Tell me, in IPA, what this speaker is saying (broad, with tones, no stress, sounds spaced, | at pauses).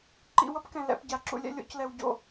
ǃ ḭ˧ w ʌ˦ p k ɛ̃˨ l ɛ̰˧ p ɟ a˨ ǁ ṵ˧ lʲ ɛ̰˧ lʲ o̰˧ c l ɛ˨ w ɟ o̰˨